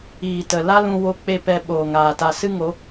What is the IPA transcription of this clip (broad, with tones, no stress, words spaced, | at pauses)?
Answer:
iː˨tə˨ la˦lũ˧ wo˧k͡pe˧ pɛ˧ɓoː˨ŋaː˨ ta˨sɨ˦ŋo˨˦